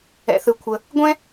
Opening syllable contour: low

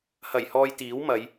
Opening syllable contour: low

